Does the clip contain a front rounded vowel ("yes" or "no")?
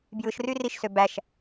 yes